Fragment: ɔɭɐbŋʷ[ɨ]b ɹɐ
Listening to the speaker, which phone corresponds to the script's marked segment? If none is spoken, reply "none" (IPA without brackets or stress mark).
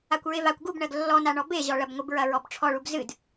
ɨ